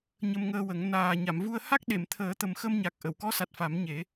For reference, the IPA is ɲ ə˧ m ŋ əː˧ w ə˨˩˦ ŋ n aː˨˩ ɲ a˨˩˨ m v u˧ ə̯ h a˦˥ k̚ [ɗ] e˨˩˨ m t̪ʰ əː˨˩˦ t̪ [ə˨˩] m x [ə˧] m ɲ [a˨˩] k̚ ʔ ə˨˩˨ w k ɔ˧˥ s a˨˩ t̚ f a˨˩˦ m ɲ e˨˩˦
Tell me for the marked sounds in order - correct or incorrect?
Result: correct, correct, correct, correct

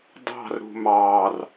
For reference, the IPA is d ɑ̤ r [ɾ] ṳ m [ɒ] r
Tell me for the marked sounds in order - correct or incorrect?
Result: correct, incorrect: ɑ

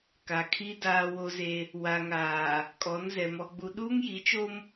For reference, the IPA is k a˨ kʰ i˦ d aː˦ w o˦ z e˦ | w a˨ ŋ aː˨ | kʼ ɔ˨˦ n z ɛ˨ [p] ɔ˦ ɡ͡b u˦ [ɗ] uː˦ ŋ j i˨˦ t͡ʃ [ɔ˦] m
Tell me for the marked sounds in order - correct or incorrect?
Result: incorrect: m, correct, incorrect: o˦

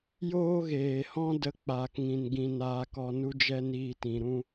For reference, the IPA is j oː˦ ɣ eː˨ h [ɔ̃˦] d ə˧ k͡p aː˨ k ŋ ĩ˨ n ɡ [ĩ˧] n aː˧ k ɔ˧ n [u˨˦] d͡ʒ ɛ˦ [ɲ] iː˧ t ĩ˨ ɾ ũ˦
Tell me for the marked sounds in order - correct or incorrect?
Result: correct, correct, incorrect: u˦, incorrect: n

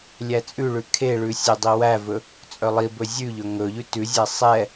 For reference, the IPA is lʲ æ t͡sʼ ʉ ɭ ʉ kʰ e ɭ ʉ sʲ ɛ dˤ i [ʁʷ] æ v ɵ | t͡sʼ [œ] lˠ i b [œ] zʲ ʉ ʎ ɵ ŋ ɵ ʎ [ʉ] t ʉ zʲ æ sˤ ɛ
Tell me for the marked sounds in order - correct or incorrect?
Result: incorrect: w, correct, incorrect: ɵ, correct

